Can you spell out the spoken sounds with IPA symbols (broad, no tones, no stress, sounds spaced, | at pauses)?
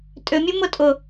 tʼ ʏ mʲ u m ʊ tʼ ʊ